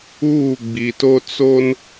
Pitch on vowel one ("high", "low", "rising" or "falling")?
falling